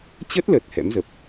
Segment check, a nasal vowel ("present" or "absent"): absent